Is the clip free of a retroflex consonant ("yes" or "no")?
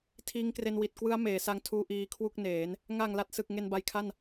yes